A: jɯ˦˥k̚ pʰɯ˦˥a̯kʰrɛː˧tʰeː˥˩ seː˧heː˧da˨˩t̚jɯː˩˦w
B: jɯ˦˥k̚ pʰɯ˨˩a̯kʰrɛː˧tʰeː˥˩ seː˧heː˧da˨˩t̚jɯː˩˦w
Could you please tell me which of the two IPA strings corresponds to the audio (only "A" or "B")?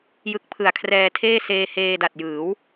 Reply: B